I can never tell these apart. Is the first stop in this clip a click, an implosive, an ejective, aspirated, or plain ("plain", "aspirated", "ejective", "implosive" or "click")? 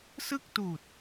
plain